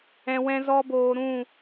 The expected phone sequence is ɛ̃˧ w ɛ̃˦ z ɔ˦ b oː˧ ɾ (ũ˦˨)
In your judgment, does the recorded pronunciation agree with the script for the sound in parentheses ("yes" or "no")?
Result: yes